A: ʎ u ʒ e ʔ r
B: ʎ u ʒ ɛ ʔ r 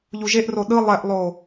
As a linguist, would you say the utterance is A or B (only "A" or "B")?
A